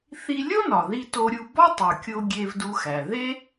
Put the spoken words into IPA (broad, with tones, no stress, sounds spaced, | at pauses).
θ i˧ lʲ o˥ n ɒ˩ ð i˧ t o˧ ɾʲ u˧ b ɒ˥ tˤ u˩ kʲ o˧ ɡʲ e˧ v d u˧ x æ˩ ð e˥